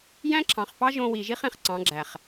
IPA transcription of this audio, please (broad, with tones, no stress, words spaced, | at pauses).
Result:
jæ̃˦ǁʰɑ̃˨χfɑ˦ ʒõ˧wi˨ʒi˦χ ẽ˧χǀɑ̃˨˦ɡ͡ǁæ˨χ